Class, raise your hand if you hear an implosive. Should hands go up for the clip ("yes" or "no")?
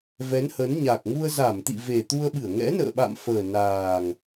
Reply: yes